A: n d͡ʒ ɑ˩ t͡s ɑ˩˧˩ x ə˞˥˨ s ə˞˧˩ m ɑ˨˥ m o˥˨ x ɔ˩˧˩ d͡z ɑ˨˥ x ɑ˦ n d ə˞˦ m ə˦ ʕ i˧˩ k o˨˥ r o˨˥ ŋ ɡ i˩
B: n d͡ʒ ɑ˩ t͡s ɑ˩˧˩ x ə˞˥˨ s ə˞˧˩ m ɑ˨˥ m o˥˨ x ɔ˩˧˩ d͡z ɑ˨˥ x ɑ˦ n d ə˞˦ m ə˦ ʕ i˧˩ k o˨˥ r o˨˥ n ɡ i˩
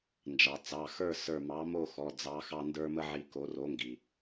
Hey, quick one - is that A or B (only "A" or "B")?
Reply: A